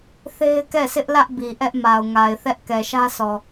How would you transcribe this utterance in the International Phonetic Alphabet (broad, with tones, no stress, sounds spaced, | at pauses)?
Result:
θ e˦ ɪ̯ k ɛ˦˨ s ɪ˦ ʔ l ä˦ ʔ b i˨ ʔ ɛ˦ ʔ m a˨ ʊ̯ ŋ a˨ ɪ̯ θ ɛ˦ ʔ k ɛ˨ ʃ ä˦ s ɔ˨